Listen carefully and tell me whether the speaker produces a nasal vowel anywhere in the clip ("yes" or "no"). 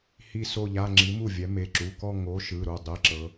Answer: no